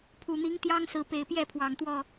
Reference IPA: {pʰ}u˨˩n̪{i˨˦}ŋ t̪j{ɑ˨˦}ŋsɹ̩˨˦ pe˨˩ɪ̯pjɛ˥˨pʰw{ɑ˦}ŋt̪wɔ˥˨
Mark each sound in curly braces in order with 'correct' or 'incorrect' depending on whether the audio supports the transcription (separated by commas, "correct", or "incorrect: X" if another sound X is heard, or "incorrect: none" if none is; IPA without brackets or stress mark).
correct, correct, incorrect: ɑ˦, incorrect: ɑ˨˩